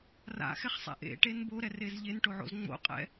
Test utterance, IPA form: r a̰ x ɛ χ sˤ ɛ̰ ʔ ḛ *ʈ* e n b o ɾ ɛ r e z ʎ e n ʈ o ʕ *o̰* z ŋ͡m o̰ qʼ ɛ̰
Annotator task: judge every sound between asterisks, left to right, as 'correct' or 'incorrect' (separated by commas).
correct, correct